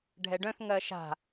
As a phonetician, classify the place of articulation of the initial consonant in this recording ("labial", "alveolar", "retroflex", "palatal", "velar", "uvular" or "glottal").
retroflex